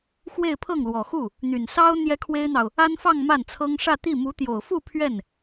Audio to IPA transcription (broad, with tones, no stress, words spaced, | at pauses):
xwe˥˧ɪ̯pʰɤ˥˩ŋlwɔ˨˩xu˥˩ | n̪y˨˩nsɑ˥ʊ̯ n̪jɛ˥kʰwe˥ɪ̯n̪ɑ˨ʊ̯ | a˥nfɑ˥˧ŋ ma˥˩nt͡sʰɤ˥ŋ ʂä˥˧t̪i˥˩ mu˧˥t̪jo˨˩ʊ̯fu˥˧ pʰɥɛ˥˩n